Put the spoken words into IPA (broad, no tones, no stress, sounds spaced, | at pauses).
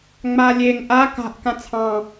ŋ͡m a lʲ e ŋ ʔ a k a̤ ʔ k ã t͡sʰ ɑ̃